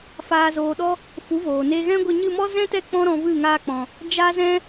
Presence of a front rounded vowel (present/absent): absent